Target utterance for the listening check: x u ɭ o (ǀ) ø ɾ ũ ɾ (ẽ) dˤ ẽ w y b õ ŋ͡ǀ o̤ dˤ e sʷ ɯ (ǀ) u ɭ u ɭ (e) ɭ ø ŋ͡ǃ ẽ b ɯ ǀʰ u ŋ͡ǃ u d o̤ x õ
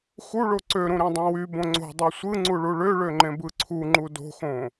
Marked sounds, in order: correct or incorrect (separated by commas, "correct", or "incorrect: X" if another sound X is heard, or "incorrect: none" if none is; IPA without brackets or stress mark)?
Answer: correct, correct, incorrect: ŋ͡ǀ, incorrect: ø